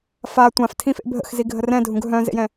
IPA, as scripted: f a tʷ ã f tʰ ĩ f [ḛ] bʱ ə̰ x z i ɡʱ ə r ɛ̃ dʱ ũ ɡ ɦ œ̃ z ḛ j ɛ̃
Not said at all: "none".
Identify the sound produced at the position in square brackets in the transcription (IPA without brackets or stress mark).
ḛ